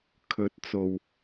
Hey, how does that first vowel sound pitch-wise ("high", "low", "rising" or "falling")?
rising